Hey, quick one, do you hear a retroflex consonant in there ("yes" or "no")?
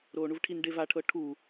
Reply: yes